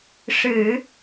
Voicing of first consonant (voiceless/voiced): voiceless